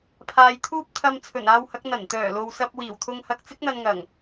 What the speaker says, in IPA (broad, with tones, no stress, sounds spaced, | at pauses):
pʰ aː˨ j t̪ʰ uː˥ p̚ t̪ʰ ɐ˧ m t͡sʰ ɵ˨˩ n aː˧ w h ɐ˨˥ k̚ n̪ ɐ˨˩ n t̪ œː˨˩ l o˨ w s ɐ˧ p̚ w iː˨˩ w t̪ʰ ʊ˧ ŋ h ɐ˧ k̚ t͡s ɪ˥ k̚ n̪ ɐ˧ n ŋ ɐ˨˩ ŋ